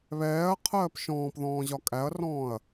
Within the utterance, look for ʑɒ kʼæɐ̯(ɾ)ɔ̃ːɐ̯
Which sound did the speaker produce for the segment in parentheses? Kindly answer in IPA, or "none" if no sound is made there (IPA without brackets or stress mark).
r